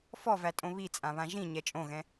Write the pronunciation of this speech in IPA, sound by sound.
fɔvætʼõ βit͡sʼãβã ʒĩɲɛ t͡ʃʼõɣɛ̃

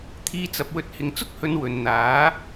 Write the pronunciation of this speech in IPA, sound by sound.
t̪ʰiː˧t͡sɐ˨p̚wɵ˧t̚ hɪ˨ŋt͡sʊ˥k̚hɵ˨˧n wɵ˨n n̪aː˨˥

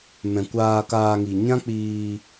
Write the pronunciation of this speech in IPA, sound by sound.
mɛ̃˨ kʷaː˧kaː˧ŋi˨ ɲã˦k͡piː˧

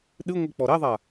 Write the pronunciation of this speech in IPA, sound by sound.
ɗɨ ŋʷik͡pɔɾɛðˤa

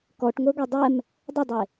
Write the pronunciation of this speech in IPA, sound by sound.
kɔʈŋʷɛɡʷe dˤɛm | dˤʏdˤe

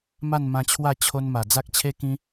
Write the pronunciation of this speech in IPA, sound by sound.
ma˥˧nmã˧t͡ɕʰwa˥˧ t͡ɕʰo˦nma˨˩ d͡za˦k̚t͡ɕʰe˦ kĩ˦

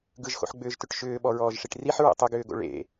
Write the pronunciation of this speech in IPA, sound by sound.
ɡɯʒxo̰ħɡ͡bʏːʒtʏʈ ʃʏːɓɔɹɔːʒʂiʈ riħɹḛ tˤʏɡʏːɡo̰ ɭḛ

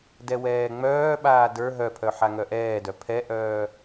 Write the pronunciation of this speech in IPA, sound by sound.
dɛwɛːŋ͡mœːɓaː də˞ ɦœpʰœ ħaŋœʔɛːdœ pʰɛʔœː

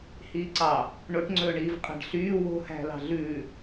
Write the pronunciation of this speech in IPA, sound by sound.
hiːǀɑ | ɳoʈŋ͡ǀɵːɳiːv qʼæ̤ɖɬyː wo̤hæ̤lɑ̤ ɮʉ

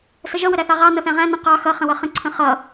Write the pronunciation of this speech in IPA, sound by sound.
səʒʌ wəɾæθɑʁɑ nʌθæ̃ʁæ̃ nə̃ qɑ xʌ χə̃wʌχə̃ ǀʰə̃χʌ

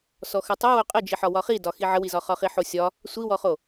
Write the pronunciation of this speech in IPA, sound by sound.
sɔxətˤo woqʼəd͡ʒiħɒ wɒχidɒ xiʕəwizɒ χɒχiħosʲɒ | sʷiwɔχo

